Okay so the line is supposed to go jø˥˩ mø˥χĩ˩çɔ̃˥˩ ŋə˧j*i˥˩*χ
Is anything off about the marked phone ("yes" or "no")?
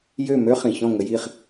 no